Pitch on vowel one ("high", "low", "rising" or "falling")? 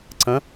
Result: rising